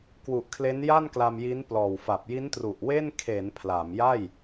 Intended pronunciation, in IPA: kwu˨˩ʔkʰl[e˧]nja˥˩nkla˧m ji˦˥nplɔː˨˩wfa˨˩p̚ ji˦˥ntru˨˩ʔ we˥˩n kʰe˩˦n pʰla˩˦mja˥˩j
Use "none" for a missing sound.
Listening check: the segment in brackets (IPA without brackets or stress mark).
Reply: e˦˥